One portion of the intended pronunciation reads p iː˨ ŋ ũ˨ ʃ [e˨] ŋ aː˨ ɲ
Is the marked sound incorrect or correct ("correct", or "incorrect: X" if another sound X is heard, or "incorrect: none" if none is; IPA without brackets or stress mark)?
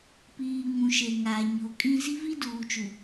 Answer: correct